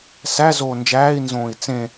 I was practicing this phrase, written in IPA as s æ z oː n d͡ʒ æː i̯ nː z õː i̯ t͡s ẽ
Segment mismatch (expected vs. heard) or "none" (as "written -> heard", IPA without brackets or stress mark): nː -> n